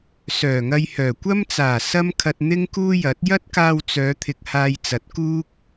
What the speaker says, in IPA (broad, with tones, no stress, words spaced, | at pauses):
sœː˨˩ŋɐ˧jhœː˨˩ kʷɐ˥mt͡saː˨˩ sɐ˥mkʰɐ˧t̚ n̪ɪ˥ŋkuː˥jɐ˨˥t̚ jɐ˥t̚kaː˧wt͡sœː˨˧ t̪ʰɪ˧k̚ haː˧jt͡sɐ˨˥t̚ kuː˥k̚